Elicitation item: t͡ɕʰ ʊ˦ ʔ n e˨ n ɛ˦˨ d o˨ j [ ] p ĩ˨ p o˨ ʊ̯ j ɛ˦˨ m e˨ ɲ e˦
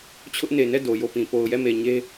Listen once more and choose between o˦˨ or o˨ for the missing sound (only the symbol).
o˦˨